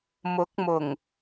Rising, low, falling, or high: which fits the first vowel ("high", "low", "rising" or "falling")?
rising